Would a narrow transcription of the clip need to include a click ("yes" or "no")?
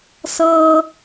no